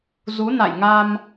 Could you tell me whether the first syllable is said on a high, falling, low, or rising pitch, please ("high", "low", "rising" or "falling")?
rising